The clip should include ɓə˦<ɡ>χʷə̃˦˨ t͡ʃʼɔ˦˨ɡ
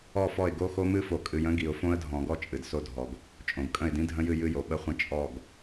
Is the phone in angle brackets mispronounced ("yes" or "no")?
yes